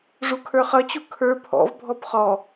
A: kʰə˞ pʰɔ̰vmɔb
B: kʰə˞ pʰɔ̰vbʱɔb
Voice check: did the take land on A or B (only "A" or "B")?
B